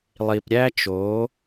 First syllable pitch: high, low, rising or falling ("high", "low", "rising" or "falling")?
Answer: low